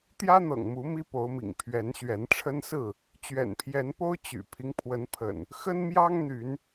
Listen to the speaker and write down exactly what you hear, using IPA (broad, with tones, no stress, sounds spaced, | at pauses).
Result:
t̪ j ä˦ n̪ ɤ̰˨˩ ŋ m u˨˦ m i˦ p o˨˦ ʊ̯ m ḭ˨˩ ŋ pʰ ɥ ɛ˨˦ n ɕ ɥ ɛ˨˦ n ʈ͡ʂʰ ə˦ n s ɹ̩˥˨ | t͡ɕ ɥ ɛ̰˨˩ n pʰ j ɛ˨˦ n p o˦ ʊ̯ t͡ɕ y̰˨˩ pʰ i˦ ŋ pʰ w ə˨˦ n pʰ ə̰˨˩ n | x ə˦ n m j ɑ˦ ŋ n̪ y˨˦ n